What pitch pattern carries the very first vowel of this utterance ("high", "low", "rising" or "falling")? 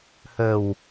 low